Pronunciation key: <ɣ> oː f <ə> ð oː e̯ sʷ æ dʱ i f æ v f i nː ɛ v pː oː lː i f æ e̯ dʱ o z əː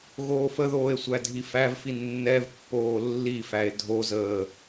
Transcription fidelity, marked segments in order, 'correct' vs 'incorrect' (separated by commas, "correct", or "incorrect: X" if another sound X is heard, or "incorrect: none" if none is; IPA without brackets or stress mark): correct, correct